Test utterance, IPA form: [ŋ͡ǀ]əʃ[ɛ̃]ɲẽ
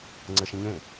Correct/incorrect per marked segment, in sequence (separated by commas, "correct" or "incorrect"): correct, incorrect